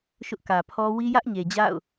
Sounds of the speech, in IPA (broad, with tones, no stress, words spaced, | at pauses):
ʃʊ˦ʔkä˨pʰɔ˦ wi˦jä˦ʔɲe˨ d͡ʑa̰˦˨ʊ̯